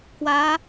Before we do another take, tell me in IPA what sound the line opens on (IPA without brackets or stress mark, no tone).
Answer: k